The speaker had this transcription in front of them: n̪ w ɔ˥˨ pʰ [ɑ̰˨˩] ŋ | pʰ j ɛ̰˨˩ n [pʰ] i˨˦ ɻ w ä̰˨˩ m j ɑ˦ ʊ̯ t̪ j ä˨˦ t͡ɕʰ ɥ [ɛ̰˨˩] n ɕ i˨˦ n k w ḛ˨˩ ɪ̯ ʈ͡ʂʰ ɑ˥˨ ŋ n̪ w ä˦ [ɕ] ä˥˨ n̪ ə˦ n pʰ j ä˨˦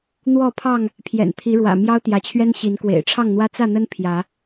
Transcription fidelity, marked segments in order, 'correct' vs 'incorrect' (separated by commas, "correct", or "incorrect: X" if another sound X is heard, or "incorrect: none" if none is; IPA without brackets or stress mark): incorrect: ɑ˥˨, incorrect: t̪ʰ, incorrect: ɛ˦, incorrect: t͡s